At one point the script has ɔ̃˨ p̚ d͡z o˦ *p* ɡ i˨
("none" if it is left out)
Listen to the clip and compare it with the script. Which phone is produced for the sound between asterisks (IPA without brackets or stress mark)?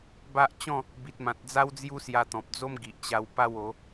m